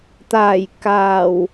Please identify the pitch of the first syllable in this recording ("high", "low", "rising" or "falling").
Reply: low